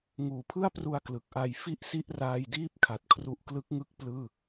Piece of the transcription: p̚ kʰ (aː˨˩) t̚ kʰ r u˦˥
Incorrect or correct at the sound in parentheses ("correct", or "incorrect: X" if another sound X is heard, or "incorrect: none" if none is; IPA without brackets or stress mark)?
incorrect: a˨˩